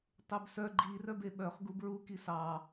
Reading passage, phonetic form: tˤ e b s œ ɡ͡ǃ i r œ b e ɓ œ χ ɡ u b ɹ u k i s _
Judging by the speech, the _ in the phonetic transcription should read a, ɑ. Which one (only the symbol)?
ɑ